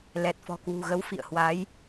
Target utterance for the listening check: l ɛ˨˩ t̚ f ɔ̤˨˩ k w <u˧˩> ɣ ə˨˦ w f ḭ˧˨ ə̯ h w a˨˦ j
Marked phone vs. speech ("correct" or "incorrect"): incorrect